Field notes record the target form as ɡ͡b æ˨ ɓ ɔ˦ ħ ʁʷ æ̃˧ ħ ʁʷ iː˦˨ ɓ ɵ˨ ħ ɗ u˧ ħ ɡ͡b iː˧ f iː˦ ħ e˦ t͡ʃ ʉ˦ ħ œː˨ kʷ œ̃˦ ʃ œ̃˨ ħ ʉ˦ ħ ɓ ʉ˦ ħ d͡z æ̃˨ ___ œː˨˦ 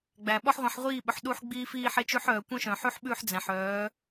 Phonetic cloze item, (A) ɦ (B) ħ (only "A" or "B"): B